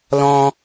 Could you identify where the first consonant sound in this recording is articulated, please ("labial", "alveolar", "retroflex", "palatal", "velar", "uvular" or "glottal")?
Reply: alveolar